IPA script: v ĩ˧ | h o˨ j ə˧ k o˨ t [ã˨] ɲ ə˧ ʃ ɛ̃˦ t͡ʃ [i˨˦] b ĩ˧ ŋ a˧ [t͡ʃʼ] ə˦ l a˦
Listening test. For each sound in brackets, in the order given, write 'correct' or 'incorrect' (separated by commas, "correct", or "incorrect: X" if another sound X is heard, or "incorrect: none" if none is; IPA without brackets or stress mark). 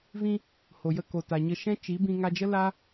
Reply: incorrect: a˨, correct, incorrect: d͡ʒ